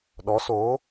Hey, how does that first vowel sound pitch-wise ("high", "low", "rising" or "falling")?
rising